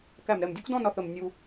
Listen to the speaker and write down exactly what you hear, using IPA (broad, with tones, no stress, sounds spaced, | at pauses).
k æ˧˩ m ɾ ɛ˧˩ m dʲ ʊ˥ k d ɔ̃˥˧ n ɒ˧˩ θ ə˧˩ m nʲ u˧